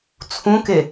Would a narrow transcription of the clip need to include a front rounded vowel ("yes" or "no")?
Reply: no